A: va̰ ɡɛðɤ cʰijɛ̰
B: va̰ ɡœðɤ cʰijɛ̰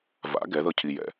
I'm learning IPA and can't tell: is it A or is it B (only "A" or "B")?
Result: A